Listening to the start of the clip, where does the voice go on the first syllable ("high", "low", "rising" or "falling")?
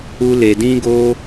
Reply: high